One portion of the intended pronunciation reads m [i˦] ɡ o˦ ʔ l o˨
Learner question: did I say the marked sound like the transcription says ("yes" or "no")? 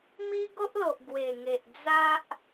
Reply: yes